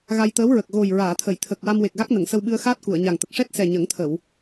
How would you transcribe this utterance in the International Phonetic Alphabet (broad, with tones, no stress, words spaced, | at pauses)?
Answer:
ɣa˧jt̪əː˧˥w ɹə˨˩k̚ ɣo˨˩j ɹaː˨˩˨t̪ʰə˨˩˨j t̪ʰə˨˩k̚ wa˧mwe˨˩k̚ɣa˦˥k̚nə˨˩˨ŋ sə˧wɓɨ˧ə̯xaː˦˥t̚ ku˨˩˨ə̯ɲa˨˩ŋt̪ə˨˩k̚ ʂɛ˦˥t̚sɛ˨˩ ɲə˨˩˦ŋt̪ʰə˨˩˨w